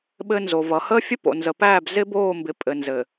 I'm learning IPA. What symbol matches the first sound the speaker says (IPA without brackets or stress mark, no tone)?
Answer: ɓ